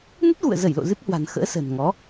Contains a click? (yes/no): no